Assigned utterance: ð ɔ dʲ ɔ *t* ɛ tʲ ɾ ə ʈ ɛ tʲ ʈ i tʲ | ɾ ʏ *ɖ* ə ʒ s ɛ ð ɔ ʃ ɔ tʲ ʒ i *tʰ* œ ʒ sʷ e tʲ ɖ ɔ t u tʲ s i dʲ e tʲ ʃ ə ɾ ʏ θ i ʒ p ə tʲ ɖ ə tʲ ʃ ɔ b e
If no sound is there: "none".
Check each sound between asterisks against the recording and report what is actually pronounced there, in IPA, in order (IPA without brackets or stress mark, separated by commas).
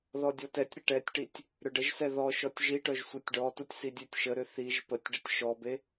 t, ɖ, ʈ